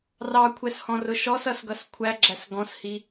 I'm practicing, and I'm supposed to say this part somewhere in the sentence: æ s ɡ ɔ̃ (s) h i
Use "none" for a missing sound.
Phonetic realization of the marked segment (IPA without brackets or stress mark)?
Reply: s